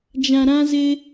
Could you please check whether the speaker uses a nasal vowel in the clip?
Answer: yes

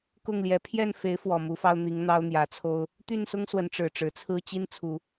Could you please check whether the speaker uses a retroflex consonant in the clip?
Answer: yes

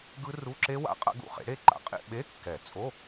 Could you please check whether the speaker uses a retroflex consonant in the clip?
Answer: yes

